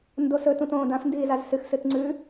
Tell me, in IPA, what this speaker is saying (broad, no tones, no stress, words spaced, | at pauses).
ndosɵ tũtõːdãf ndiːzazsɨx sɨtŋ͡ǀʉ